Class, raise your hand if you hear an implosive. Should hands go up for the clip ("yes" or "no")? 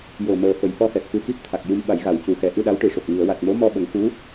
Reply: yes